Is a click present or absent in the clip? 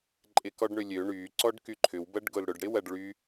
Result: present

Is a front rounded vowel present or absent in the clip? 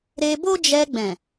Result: absent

